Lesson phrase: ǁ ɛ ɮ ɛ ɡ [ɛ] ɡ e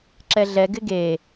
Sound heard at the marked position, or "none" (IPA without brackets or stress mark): ɪ